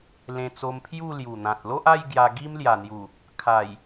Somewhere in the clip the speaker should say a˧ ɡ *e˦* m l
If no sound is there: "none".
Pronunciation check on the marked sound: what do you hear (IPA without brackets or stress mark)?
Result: i˦